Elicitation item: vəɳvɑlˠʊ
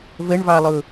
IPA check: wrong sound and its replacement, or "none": none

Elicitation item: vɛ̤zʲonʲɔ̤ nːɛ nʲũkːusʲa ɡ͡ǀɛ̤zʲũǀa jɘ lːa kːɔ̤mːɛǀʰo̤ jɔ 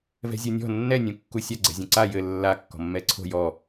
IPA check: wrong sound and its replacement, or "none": none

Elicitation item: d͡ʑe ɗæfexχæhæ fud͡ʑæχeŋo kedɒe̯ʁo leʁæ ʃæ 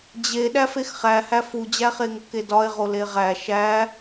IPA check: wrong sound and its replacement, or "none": none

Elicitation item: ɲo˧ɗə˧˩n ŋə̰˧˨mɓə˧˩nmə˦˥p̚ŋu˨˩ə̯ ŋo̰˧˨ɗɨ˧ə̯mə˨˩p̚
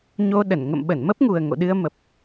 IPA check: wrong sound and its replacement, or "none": none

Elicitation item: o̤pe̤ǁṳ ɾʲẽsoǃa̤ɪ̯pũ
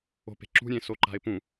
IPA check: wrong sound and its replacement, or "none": none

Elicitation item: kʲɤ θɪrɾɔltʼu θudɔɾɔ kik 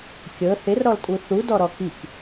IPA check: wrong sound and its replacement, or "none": none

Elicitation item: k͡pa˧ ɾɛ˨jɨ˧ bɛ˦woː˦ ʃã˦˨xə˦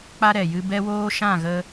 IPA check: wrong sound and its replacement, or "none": x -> ɣ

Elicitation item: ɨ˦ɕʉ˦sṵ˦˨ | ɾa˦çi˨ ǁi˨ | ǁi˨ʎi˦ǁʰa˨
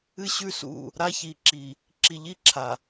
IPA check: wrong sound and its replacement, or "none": none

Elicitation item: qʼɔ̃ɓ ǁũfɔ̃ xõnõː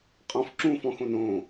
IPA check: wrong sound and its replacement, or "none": ɓ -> f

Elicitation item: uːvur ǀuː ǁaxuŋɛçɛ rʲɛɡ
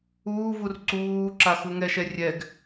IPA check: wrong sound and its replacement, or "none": ç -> ʃ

